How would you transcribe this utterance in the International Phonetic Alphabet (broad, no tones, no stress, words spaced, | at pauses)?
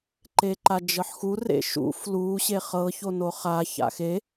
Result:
ǃeǃad͡ʒɤħxu rḛʃṵ flu ɕeχɤ çonoχa ça̰xe